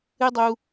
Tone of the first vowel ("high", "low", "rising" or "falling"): high